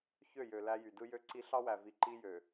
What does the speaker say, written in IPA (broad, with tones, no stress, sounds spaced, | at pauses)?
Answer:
ç ø˦˨ j ø˨ l æ˦ j y˨ d ɯ˦ j ø˦ ǀ i˦ ɬ ɑ˦ w æ˨ v i˨ ǃ i˦ j ø˨